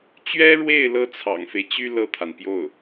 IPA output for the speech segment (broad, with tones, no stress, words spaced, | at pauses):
t͡ɕɥɛ˥ɻwe˥˩ɪ̯ lɤ˥t͡sʰɑ̰˨˩ŋfe˦ɪ̯t͡ɕy˥ lɤ˥˩t̪ʰa˩npjo˥˩ʊ̯